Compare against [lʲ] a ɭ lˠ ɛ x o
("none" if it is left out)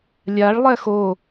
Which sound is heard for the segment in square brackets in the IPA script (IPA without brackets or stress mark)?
lʲ